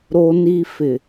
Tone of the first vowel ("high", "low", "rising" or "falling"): high